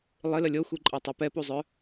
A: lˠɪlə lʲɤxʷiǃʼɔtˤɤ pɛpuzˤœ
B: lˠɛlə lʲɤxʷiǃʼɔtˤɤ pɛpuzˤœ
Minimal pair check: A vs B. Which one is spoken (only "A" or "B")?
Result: A